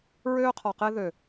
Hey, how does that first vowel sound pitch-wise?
high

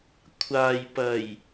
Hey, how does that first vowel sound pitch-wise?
low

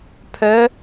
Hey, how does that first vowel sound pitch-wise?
rising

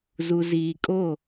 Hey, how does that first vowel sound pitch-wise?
low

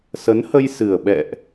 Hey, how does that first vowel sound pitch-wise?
rising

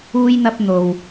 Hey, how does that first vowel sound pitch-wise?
low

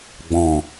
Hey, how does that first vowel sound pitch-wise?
low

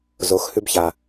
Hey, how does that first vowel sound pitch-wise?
rising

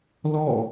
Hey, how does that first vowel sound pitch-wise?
falling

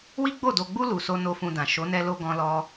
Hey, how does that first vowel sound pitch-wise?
high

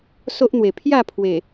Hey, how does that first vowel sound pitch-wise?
high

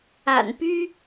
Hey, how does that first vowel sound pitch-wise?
low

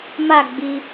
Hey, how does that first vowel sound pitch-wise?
falling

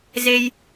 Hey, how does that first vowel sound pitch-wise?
high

